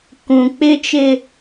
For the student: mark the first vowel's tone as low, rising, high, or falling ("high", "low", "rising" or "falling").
low